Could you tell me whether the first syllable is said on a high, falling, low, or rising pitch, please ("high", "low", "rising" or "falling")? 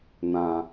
low